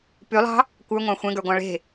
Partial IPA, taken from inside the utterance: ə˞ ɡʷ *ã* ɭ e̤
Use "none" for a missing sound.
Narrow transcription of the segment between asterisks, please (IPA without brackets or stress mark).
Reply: ɑ̃